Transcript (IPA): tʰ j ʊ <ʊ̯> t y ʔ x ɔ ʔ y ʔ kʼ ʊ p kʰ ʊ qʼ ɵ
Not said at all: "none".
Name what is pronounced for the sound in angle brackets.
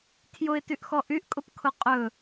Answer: ɪ̯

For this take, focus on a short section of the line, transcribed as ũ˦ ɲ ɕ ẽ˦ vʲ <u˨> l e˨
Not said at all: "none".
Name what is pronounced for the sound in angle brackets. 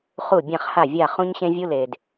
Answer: u˦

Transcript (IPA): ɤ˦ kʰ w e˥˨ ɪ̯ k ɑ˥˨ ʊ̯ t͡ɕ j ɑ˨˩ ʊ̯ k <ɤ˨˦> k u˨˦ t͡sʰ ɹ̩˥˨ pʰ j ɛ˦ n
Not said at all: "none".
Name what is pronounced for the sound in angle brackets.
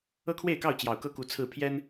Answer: ɤ˥˨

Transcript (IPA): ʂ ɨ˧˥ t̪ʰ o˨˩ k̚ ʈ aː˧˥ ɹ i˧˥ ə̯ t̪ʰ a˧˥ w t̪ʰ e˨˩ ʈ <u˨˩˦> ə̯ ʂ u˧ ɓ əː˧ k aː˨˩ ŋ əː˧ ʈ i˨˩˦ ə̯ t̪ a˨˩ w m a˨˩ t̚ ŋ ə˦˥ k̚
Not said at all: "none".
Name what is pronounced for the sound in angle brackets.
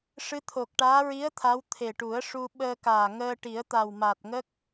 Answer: u˨˩˦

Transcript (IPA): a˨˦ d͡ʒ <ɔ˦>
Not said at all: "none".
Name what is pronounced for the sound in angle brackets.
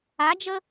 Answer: ə˦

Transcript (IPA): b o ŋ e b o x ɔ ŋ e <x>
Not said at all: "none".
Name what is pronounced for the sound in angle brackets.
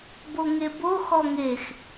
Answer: x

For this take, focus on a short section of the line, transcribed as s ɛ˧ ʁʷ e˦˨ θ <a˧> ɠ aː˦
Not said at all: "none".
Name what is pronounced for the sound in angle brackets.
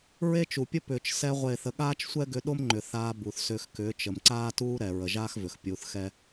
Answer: ə˧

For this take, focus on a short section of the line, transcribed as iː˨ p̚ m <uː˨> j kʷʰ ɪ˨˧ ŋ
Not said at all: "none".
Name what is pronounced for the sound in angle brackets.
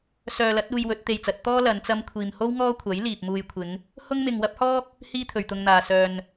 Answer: uː˧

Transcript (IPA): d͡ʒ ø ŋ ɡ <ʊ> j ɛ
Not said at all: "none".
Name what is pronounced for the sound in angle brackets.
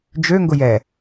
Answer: ʊ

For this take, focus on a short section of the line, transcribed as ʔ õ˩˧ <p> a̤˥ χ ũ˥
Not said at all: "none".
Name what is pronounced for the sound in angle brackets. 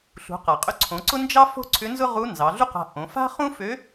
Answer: f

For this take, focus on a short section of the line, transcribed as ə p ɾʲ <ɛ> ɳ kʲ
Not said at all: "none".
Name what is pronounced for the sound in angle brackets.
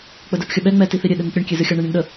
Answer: ɨ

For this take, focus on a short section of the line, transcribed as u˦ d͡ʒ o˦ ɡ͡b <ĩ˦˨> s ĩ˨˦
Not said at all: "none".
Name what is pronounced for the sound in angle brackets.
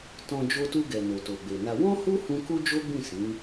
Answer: ĩ˦˨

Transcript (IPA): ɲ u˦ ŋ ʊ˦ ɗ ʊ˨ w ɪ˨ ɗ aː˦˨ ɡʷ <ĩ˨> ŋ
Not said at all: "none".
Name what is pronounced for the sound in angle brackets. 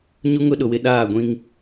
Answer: ĩ˦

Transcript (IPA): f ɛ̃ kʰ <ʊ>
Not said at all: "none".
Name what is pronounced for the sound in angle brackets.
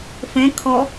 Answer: ɔ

